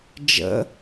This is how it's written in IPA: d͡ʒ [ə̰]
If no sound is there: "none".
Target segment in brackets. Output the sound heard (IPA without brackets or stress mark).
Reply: ə̰